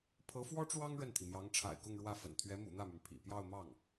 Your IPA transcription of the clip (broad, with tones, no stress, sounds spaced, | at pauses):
pʰ ɤ˧˥ f w ɔ˥ ʈ͡ʂ w ɑ˥ ŋ ɻ ə˥˩ n t̪ʰ i˩ m j ɑ˧˥ ŋ ʈ͡ʂʰ a̰˨˩ ɪ̯ k ʊ˥˧ ŋ ɻ w ä˥˩ f ə̰˨˩ n t̪ʰ ɥ ɛ˧˥ m ṵ˨˩ n̪ ä˥˩ m y˩ n pʰ ḭ˨˩ p j ɑ˥˧ ʊ̯ m ɑ˥˩ ŋ